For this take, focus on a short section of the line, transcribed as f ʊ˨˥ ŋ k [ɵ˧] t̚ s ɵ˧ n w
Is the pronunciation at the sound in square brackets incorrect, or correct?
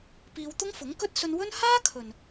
incorrect: ɵ˥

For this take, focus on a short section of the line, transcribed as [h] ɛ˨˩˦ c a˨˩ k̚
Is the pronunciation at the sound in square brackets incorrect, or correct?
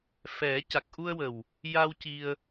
incorrect: f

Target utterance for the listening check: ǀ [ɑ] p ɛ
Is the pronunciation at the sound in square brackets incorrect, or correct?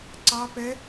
correct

